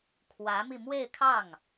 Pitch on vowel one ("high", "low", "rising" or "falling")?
rising